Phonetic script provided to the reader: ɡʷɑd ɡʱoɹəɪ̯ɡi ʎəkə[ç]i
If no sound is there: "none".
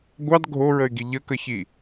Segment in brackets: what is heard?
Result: ç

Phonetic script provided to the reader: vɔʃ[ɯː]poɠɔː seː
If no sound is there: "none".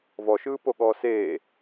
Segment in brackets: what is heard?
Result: ɯː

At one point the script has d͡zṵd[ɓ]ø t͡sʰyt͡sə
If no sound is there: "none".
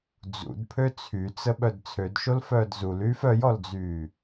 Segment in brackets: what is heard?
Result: pʰ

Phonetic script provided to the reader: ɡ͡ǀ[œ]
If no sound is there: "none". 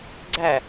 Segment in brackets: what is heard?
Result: æ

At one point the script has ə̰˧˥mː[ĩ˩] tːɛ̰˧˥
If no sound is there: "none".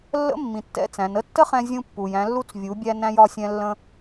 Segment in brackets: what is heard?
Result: ĩ˩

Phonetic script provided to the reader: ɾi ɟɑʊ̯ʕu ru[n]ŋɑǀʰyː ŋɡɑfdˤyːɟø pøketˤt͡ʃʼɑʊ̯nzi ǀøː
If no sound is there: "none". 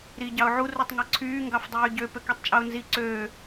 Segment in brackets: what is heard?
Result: tˤ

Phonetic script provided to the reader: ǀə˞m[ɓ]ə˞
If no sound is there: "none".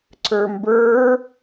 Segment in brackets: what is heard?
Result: b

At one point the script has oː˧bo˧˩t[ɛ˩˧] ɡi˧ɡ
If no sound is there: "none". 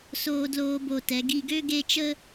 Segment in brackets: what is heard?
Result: ɛ˩˧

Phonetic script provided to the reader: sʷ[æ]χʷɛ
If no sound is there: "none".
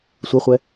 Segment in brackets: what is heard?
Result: œ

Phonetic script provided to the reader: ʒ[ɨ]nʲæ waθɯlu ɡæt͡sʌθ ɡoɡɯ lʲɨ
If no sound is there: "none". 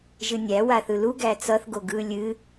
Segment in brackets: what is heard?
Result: ɨ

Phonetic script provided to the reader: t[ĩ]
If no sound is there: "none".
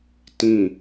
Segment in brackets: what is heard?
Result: ĩ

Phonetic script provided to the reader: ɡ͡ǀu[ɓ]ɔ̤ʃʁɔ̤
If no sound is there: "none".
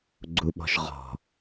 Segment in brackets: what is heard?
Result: ɓ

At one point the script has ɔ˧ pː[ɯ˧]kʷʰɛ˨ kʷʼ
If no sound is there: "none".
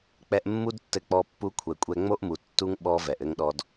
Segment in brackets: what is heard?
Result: u˧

